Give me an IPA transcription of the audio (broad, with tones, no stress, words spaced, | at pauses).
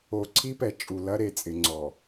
o˨ ǀʰi˦pɛ˨ t͡ʃʼu˨lɐ˦ɾe˨t͡sʼɪ˨ ŋ͡ǀɔ˨